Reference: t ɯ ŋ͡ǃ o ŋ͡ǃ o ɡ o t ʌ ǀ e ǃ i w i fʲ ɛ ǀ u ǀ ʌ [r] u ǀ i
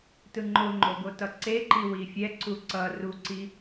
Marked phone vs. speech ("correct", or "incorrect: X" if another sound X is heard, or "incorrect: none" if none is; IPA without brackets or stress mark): correct